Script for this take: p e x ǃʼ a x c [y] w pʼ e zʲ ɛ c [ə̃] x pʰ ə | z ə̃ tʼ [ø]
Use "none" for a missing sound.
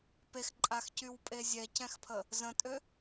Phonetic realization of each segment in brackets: y, ɛ̃, ø

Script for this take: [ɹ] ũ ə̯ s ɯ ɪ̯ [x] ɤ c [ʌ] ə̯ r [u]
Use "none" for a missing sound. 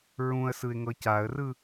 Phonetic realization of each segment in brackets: ɹ, ŋ, a, ɯ

